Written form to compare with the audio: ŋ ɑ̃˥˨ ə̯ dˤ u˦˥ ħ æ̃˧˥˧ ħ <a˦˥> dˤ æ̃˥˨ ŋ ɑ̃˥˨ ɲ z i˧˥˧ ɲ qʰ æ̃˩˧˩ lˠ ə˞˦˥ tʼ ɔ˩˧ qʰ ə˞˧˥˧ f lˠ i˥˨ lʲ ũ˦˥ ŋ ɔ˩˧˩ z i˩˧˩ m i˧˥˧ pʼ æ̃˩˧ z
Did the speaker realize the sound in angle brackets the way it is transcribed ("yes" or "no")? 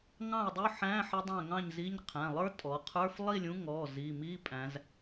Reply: no